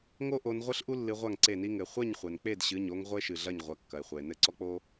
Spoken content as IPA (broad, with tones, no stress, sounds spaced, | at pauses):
ŋ o˥ ʔ o˨˦ n ʁʷ ɘ˥ ɬ ʔ u˥ lː ɨ˨˦ ʁʷ a˥˩ ŋ ǀ e˥˩ n i˥ ŋ ɘ˩˧˩ χʷ ɛ˥˩ ɲ χʷ ɛ˩ n k͡p e˥˩ d ɕ ɨ˩˧˩ ɲ o˥ ŋ ʁʷ e˥ ʃ ɨ˩ ɮ ɐ˥˩ ɲ ʁʷ ɐ˩˧˩ kː ɐ˩ e̯ χʷ ɛ˩ e̯ n ɘ˥˩ ǀ ɔ˥ k͡p o˥